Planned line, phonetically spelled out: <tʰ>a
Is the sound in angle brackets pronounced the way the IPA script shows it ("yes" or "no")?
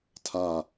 yes